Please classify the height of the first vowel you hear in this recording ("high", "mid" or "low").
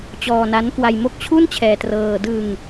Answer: mid